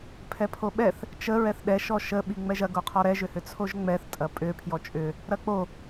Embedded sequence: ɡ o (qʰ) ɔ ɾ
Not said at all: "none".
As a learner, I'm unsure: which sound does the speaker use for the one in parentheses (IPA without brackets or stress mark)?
qʰ